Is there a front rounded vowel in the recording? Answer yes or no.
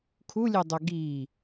yes